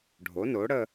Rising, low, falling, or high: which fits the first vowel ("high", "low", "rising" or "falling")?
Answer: rising